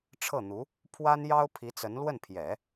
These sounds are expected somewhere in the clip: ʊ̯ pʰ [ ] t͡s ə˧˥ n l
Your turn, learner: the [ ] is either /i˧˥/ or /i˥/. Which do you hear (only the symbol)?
i˧˥